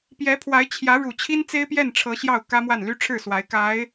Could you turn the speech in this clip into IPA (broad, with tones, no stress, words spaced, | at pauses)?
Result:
pjɛ˧˥pʰwa˧˥ɪ̯ t͡ɕʰjä˧˥ɻu˨˩ t͡ɕʰi˥nt͡se˥ɪ̯ pjɛ˥˩nʈ͡ʂʰɤ˧˥ɕjɑ˥˩ʊ̯ kä˥mwa˥˩n ly˥ʈ͡ʂʰɻ̩˥˩swa˧˥ɪ̯ ka˧˥ɪ̯